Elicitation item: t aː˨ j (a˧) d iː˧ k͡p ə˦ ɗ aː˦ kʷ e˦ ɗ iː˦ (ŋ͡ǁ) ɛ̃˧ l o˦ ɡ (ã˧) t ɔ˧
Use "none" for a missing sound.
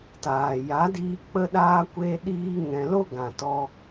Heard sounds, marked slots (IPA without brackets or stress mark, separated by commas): a˨˦, ŋ, ã˨